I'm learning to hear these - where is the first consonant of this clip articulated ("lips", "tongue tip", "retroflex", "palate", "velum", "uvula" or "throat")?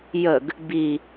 palate